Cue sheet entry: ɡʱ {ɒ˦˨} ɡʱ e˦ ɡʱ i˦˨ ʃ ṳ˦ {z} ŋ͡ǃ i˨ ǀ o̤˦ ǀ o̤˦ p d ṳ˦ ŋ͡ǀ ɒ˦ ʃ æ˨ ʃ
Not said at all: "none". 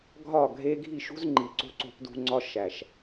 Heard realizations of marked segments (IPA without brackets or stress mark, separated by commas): ɒ˦˨, z